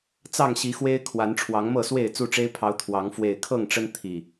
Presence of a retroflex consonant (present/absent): present